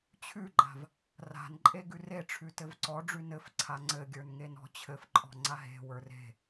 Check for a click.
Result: present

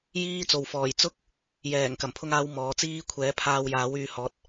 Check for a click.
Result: absent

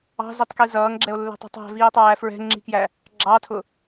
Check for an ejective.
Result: absent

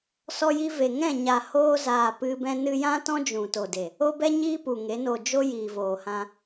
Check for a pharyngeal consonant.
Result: absent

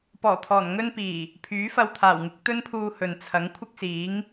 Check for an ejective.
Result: absent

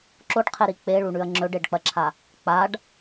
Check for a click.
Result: present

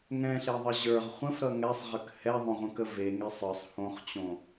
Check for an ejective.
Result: absent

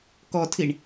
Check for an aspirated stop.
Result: present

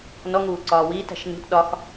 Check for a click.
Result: present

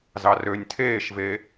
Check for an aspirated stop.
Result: present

